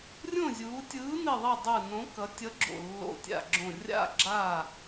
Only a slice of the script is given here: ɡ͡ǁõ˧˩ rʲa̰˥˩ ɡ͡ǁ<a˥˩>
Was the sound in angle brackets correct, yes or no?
yes